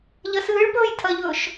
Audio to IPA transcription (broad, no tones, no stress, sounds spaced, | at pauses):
ʎ ɐ s ɨː ɭ p ɵː j tʰ ɐ ʎ ɵː ʃ